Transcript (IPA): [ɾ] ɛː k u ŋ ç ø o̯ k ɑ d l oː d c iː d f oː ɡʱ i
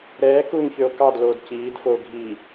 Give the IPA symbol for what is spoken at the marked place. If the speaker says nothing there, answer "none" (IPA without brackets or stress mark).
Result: ɾ